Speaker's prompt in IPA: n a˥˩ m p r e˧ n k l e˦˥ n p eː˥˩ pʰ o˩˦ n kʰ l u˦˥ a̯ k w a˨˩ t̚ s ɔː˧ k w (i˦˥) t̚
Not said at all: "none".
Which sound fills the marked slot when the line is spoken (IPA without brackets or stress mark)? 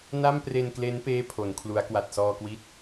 i˦˥